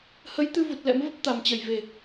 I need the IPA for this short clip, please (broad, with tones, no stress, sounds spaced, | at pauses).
h ə˨˦ j t̪ ɨ˧ v u˨˩ t̚ l ɛ̰˧˥ m v ə˦˥ p̚ t̪ a˨˩ m t͡ɕ ə˧˩ j v e˨˩